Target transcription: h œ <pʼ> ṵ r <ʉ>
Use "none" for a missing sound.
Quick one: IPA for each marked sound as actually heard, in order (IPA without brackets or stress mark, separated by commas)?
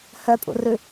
pʼ, ʉ